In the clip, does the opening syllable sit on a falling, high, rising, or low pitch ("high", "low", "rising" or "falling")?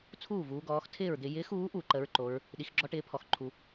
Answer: falling